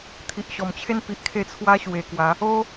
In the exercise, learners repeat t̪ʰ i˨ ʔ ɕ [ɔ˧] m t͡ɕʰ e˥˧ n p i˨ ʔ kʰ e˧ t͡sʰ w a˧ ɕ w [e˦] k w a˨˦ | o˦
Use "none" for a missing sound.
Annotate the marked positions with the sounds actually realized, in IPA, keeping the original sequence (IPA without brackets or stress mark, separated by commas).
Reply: ɔ˨˩, e˨˩